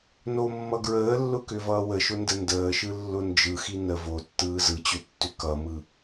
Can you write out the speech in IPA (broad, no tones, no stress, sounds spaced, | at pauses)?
n o mː ʌ ɡ ɹ əː lː ʊ k ʏ v ʌː w ə ʃ ʊ n d ə n d əː ʃ ɯ lː ʊ n d͡ʒ ɯ x i n ə v o tː ɯː z ɯ t͡ɕ ʏ tː ʏ k ʌ m ɯ